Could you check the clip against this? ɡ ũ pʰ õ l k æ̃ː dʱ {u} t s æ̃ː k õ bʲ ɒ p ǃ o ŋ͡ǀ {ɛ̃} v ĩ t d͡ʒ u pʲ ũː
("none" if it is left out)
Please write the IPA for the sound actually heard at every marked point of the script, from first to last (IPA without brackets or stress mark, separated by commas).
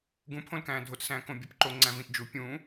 o, æ̃